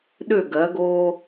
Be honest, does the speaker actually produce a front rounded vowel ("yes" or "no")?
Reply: yes